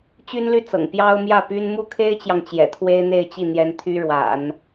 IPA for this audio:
t͡ɕ y˥ n l y˥˩ t͡s ɤ̰˨˩ ŋ p j ɑ˥ ʊ̯ m j ä˥˩ p y˥ n m u˥˩ kʰ e˥ ɪ̯ t͡ɕ j ɑ˨ ŋ t͡ɕ j ɛ̰˨˩ t̪ʰ w e˥ ɪ̯ n̪ e˥˧ ɪ̯ t͡ɕ i˥˩ n̪ j ɛ˥ n t̪ʰ y˥ ɻ w a̰˨˩˦ n

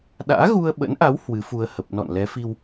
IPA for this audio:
ɗ a̰ː˧˥ ɣ u˧ ə̯ ɓ ə̰˧˥ n ʔ a˨˦ w h w ɨ˨˦ f u˧ ə̯ h ə˨˩ p̚ n ɔ̰˧˨ n l ɛ˨˦ f i˧ w

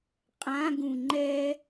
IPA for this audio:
qʼ ã ɡ ũ ŋ͡ǃ ɛ

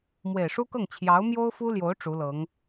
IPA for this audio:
m w e˨˩ ɪ̯ ʂ u˥ k ɤ˥˩ ŋ t͡ɕʰ j ɑ˧˥ ʊ̯ m j o˥ ʊ̯ f u˥ l j o˧˥ ʊ̯ ʈ͡ʂ u˧˥ l ɤ˧˥ ŋ

